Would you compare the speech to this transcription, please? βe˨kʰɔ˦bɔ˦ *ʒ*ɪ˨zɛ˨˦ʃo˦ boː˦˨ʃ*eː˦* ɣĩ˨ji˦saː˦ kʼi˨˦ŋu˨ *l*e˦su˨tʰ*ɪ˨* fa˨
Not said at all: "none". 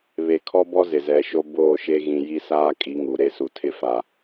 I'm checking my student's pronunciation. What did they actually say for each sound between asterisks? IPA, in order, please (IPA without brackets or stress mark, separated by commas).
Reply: z, e˦, ɾ, ɪ˦